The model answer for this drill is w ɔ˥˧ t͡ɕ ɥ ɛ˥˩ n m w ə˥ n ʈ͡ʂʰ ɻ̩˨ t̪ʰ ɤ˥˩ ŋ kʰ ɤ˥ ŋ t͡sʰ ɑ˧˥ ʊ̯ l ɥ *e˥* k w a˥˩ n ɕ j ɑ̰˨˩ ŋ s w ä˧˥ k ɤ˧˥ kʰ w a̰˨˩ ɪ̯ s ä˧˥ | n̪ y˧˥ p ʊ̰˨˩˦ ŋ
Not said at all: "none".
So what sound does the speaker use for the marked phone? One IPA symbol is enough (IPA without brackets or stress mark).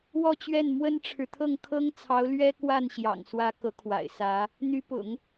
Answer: ɛ˥